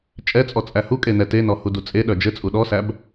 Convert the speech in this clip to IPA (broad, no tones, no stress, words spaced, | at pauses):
t͡ʃʼɛt͡sʼɔ t͡sʼæhukʼe nɛtenɔ hudut͡sʼeɗœ d͡ʒɘt͡sʼu ɗɔsæb